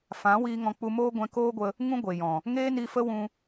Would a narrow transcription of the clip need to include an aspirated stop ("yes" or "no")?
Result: no